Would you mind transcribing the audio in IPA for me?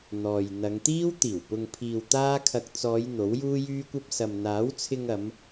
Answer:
n̪ɔː˨j n̪ɐ˨˧ŋt̪iː˥w t̪iː˨˩wpʊ˨ŋpʰiː˨w t̪aː˥kʰɐ˧k̚ t͡sɔː˨˧j n̪o˨˥wjuː˥jyː˥kʷɐ˥p̚ sɐ˨mn̪aː˨˥wt͡sʰɪ˧ŋɐ˨˧m

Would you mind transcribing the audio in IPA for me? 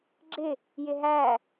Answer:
ɡ͡ǁɪ | jɪɦæ

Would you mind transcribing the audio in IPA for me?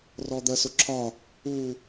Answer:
rɔd̪ɜsʊǁʰɒ | u

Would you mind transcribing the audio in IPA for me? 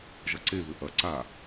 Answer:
ʒɐǀeβɘ ʔɐ ǀa

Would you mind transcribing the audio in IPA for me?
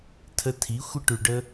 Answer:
tʰə˧tʰi˨˦ xʷɪ˦ʈʉ˨ɖə˧

